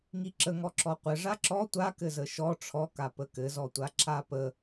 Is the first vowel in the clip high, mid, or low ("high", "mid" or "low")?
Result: high